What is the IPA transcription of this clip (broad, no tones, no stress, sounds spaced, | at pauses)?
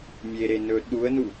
mʲ e ɾ e n ɵ ɗ u ə̯ n u